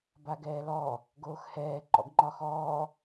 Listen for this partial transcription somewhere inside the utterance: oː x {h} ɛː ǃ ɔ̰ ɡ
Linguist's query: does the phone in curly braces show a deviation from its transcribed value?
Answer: no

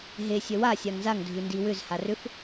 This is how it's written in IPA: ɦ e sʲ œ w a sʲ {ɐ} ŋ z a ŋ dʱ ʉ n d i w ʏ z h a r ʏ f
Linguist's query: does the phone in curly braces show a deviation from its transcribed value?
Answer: yes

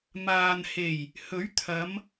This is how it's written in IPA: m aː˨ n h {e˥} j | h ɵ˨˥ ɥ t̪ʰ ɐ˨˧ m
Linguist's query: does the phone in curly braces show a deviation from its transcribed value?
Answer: yes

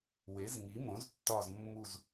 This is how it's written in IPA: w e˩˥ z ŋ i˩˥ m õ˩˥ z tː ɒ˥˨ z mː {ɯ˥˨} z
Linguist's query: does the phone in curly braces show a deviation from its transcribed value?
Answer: yes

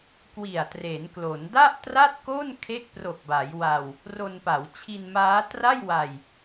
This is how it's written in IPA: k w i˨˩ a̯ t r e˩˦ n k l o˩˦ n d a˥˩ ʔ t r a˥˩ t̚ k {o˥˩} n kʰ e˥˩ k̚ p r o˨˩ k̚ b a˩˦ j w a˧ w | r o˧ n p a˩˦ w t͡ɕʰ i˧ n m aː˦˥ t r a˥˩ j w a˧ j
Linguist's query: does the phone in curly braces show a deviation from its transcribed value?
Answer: no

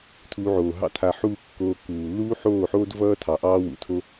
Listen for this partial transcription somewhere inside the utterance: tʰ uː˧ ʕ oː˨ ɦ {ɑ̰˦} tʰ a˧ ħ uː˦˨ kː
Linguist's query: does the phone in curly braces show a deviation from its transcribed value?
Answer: no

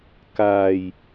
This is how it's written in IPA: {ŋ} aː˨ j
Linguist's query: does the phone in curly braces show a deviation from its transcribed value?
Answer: yes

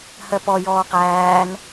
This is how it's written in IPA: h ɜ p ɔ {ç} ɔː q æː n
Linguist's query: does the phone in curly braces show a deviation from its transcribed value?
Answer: yes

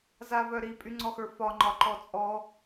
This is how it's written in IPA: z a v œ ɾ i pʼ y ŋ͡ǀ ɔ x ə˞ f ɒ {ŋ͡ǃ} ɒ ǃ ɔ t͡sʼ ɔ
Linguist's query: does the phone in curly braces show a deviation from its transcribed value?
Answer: no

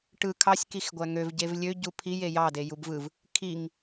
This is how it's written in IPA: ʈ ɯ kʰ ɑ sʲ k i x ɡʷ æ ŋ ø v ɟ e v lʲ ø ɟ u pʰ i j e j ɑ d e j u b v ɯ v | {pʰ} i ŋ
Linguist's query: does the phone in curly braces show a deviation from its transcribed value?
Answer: yes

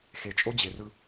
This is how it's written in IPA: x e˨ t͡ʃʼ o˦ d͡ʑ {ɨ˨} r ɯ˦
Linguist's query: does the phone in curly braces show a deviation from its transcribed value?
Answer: yes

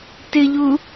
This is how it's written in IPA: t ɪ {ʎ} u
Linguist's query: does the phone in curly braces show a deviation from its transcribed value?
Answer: no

